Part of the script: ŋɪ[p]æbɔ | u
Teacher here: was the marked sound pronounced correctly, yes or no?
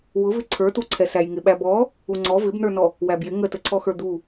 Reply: no